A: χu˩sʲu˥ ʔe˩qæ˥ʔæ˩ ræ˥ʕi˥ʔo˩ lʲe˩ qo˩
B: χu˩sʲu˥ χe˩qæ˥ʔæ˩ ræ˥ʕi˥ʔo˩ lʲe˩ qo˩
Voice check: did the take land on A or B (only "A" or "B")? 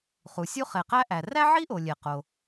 B